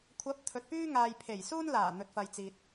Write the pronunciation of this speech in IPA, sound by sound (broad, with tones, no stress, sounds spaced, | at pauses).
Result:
kʷʰ ɐ˨˥ p̚ t̪ʰ ɵ˨ t̚ p yː˥ ŋ aː˨ j pʰ e˨˩ j s uː˥ n l aː˨˩ n̪ ɵ˨ t̚ f ɐ˨ j t͡s iː˨ t̚